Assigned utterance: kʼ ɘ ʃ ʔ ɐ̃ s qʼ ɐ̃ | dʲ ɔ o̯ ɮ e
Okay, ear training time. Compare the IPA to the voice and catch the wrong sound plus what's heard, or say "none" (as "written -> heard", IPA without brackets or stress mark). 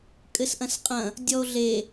ʃ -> s